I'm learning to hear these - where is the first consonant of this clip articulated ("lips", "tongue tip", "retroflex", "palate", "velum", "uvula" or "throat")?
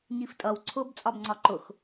palate